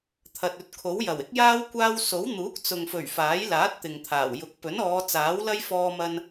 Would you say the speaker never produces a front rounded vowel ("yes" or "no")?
yes